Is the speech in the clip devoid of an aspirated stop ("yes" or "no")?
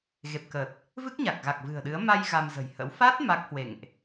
yes